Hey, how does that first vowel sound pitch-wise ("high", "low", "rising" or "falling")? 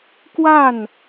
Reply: falling